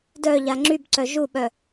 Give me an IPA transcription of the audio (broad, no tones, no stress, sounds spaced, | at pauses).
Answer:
d œ ʎ a ŋ͡ǁ y b ǀ œ ʒ u ɓ œ